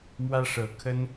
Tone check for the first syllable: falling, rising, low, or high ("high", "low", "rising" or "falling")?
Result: high